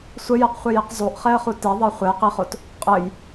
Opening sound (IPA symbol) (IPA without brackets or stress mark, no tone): sʷ